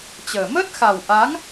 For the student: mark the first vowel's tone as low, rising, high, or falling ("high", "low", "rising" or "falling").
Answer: low